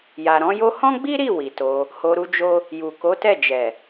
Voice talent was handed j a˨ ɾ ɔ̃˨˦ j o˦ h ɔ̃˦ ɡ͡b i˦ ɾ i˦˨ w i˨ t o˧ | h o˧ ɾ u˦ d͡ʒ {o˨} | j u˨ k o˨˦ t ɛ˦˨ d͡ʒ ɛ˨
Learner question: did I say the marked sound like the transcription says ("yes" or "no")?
no